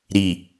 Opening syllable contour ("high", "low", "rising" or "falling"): low